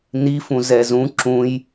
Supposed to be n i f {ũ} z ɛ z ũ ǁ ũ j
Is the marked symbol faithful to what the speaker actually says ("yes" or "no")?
yes